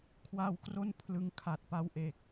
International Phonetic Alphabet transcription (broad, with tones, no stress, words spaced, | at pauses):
kʰwaː˧w kro˥˩n pʰlɯ˧ŋ kʰa˨˩t̚pa˦˥w ʔeː˨˩k̚